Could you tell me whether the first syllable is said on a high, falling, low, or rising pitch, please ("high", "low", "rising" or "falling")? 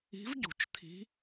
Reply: rising